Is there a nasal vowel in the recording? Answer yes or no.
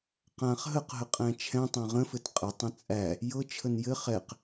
yes